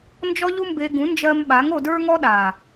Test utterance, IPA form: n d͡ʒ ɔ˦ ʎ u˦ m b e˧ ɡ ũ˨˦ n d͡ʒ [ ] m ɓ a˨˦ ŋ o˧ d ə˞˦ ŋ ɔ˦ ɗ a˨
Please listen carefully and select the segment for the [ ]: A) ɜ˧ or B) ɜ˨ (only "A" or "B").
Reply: A